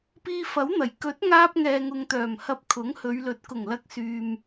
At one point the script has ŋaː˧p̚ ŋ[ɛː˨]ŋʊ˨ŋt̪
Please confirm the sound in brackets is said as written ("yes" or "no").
yes